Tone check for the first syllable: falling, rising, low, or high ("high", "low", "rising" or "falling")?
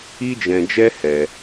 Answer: high